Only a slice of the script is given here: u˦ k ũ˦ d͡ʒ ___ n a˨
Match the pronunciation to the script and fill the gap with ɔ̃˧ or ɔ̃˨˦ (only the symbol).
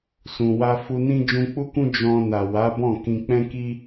ɔ̃˧